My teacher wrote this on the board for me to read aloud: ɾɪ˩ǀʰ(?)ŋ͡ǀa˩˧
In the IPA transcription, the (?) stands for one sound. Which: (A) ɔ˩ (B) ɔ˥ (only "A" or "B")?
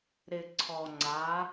A